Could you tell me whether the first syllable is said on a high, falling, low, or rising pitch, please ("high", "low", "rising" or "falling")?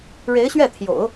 rising